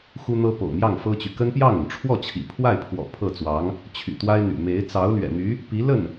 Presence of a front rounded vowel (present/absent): present